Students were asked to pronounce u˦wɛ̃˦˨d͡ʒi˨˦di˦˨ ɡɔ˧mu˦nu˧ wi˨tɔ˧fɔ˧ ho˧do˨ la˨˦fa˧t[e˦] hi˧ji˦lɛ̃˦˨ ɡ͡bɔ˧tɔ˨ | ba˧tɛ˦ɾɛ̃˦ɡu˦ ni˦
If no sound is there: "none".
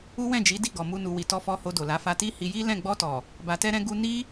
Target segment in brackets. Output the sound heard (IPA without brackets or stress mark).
i˦